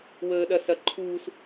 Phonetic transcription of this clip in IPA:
w əː ɗ ɐ s ɐ ǃʰ uː s

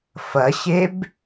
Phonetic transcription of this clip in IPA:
f ɐ ɕ e b

